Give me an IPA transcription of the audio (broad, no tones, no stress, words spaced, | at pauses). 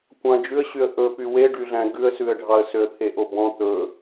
kʷɑ̃d͡ʒʉə̯ɕyə̯ ʔɵpy weɖyɮæ̃ ɡʉə̯sʉə̯ɖʱɑə̯ søə̯t̪ʰeʔobɔ̃ t̪ɵ